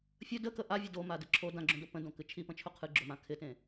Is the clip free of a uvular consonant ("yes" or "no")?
no